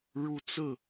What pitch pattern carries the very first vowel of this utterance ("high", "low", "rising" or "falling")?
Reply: rising